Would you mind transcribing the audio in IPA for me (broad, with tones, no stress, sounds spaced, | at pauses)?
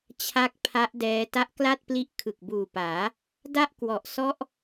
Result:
t͡ɕʰ a˦˥ k̚ pʰ a˦˥ ʔ d ɛː˧ t a˦˥ ʔ k l a˥˩ t̚ p l i˦˥ ʔ kʰ ɯ˨˩ k̚ b uː˨˩ p aː˩˦ | d a˥˩ ʔ k w ɔ˨˩ ʔ s ɔ˦˥ ʔ